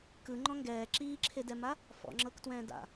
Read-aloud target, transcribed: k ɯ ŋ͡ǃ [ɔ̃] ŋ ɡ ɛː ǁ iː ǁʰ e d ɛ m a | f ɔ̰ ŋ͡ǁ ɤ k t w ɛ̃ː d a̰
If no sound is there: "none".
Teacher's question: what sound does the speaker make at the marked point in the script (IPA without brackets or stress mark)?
ɔ̃